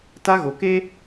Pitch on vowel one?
high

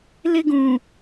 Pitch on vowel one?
high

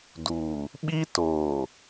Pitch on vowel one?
low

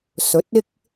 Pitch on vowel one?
rising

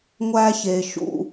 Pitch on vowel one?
high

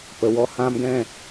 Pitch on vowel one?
low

